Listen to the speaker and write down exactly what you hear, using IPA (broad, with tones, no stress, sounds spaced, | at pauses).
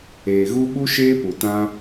eː˨ ɣ u˦ ɓ u˦ ʃ eː˦ p u˨ t ã˧